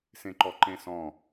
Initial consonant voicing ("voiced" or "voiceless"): voiceless